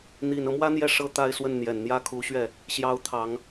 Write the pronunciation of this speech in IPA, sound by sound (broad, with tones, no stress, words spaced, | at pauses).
n̪i˨˩nɤ˦mwä˥n̪jɛ˥˩ ʂɤ˥ t̪a˥˧ɪ̯swə˥˩n n̪jɛ˨˩nn̪jä˥kʰu˧˥ɕɥɛ˥˩ | ɕjɑ˧˥ʊ̯t̪ʰɑ˨˩˦ŋ